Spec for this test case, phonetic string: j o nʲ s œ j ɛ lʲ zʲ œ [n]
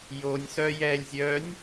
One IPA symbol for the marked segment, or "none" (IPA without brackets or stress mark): nʲ